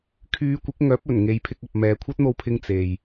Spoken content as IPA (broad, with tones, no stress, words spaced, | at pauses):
kʰyː˨˧kʷɪ˨˥k̚ŋœː˨˥p̚ ɵ˨˩n ŋe˨˧jpʰɪ˧k̚ɐ˨p̚ mɛː˨kʷʰɐ˥t̚n̪o˧wpʰɪ˧ŋ t͡se˨j